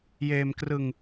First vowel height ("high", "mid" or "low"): mid